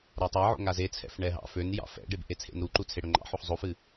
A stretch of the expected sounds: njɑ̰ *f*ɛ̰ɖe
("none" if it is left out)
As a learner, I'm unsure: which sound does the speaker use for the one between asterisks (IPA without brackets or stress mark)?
f